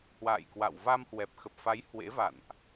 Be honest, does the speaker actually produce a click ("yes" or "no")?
no